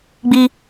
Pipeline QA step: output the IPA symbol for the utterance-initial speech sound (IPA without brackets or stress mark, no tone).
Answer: ɡ͡b